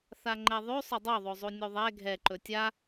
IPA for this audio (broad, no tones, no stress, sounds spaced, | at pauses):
θ a ŋ͡ǃ ɛ ðˤ ʉ sˤ ɵ dˤ o ðˤ o zˤ u nʲ u ðˤ ɛ ɡʱ ɛ ǃ ɵ tʲ a